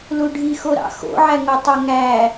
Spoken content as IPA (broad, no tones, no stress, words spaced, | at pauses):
luɖʱi xoɾɑ̰xo̰ ʕæŋotˤoŋæ